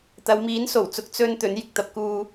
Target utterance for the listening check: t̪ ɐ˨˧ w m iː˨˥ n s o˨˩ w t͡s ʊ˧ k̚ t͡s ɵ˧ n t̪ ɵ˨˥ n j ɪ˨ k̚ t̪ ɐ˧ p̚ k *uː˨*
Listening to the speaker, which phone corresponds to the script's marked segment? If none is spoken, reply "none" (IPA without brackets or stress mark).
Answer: uː˨